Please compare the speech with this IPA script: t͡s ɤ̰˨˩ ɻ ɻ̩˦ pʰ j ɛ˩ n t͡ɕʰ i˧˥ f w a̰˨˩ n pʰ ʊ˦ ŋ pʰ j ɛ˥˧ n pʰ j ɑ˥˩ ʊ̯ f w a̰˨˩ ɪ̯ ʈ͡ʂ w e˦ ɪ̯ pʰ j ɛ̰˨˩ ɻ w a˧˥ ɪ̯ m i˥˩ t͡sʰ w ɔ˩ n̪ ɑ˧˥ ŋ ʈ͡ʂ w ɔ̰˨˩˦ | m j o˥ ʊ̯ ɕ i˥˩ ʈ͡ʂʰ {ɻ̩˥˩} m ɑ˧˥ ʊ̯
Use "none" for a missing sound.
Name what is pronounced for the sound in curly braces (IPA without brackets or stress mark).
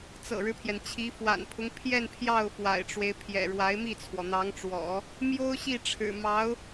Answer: ɻ̩˨˩